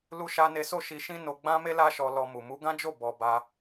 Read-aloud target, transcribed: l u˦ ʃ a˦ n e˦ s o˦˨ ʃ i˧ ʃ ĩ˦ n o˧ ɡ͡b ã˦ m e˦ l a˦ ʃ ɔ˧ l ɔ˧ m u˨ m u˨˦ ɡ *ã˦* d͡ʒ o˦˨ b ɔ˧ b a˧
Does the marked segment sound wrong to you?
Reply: no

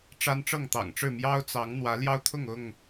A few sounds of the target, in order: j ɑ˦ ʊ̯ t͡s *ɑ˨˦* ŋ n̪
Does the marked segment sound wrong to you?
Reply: no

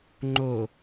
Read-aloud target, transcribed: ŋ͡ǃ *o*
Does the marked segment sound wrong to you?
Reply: no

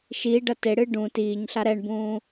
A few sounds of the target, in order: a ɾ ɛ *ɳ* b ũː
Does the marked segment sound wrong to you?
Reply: no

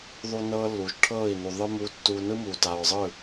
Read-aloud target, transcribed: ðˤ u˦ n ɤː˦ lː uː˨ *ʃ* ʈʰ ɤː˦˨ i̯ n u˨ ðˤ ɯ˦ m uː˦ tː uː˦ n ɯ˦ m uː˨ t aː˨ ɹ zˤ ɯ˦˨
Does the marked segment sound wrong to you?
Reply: no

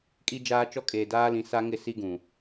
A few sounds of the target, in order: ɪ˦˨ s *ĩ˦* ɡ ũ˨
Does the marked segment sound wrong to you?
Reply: yes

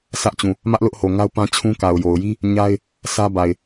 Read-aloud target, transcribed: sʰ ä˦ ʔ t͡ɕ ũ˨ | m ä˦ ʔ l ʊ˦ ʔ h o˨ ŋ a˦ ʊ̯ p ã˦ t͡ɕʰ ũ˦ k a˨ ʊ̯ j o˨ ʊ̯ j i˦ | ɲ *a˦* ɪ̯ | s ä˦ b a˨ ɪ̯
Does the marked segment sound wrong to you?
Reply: no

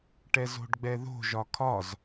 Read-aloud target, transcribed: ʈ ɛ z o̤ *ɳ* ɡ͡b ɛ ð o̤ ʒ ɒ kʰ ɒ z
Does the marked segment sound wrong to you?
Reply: yes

